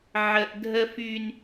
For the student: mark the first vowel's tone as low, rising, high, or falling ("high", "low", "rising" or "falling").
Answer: high